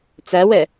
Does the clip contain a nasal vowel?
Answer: no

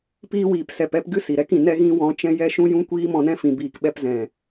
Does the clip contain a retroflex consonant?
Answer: no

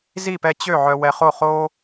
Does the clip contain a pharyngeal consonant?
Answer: yes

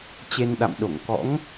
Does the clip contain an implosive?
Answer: yes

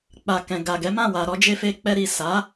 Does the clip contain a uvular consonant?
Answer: no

